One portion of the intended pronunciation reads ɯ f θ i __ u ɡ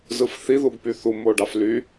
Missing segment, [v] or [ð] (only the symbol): ð